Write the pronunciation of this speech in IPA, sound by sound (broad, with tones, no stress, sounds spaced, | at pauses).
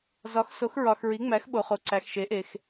z ɒ˨˥ x s o˨˥ x ɹ ɒ˨ x ɹ i˨˥ ŋ͡m æ˨˥ x ɓ o˨ χ o˨ ǀ æ˨ x ʃ e˨˥ ʔ e˨ x